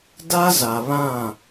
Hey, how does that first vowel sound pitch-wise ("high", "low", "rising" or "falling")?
high